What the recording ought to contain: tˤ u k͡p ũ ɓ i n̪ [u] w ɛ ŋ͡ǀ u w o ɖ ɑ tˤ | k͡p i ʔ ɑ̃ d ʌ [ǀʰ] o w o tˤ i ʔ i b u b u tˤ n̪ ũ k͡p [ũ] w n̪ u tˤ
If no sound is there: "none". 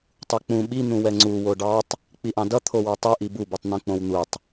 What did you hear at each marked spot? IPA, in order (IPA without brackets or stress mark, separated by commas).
ũ, t̪ʰ, õ